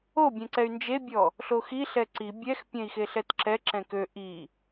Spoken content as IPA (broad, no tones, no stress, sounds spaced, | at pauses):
o bʲ ɛ̃ ǀ ɛ y̯ n d͡ʒ e bʲ ɔ | ɬ o x i ɬ ɛ ǀ i bʲ ɛ x pʲ ɛ̃ i̯ x e ɬ ɛ t ǁ ɛ ǁ ɛ̃ k ø ʔ i